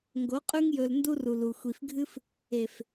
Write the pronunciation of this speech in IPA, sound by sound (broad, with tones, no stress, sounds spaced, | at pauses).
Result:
ŋ ɡ o˨˦ qʼ ʉ˦ ŋ j ɵ˧ l n d u˦ r u˨ l u˨ xʷ i˨ f ɡʱ ɨ˦ f | e˨ f